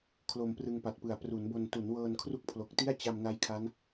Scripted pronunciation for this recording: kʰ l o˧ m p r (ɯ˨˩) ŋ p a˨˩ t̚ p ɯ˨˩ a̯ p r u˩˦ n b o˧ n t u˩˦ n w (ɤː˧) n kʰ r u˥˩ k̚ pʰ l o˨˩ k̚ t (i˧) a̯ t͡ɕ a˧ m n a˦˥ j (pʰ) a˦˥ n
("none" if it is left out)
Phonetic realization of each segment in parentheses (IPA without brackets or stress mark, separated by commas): ɯ˧, ɤː˧, i˥˩, kʰ